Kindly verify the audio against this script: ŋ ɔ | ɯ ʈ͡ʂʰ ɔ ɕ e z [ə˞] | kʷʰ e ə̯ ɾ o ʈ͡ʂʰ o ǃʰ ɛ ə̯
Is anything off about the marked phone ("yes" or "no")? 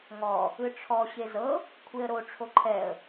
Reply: yes